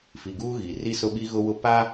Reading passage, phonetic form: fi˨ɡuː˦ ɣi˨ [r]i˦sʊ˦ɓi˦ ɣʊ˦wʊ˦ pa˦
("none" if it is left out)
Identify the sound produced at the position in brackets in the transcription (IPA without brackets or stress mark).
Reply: r